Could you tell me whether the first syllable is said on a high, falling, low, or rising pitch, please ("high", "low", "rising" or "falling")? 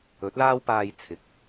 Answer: rising